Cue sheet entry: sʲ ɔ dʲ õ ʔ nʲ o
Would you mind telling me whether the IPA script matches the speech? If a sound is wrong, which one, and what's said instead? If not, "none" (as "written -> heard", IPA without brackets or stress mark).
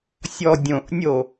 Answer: none